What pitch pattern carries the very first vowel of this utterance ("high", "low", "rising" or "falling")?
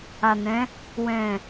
low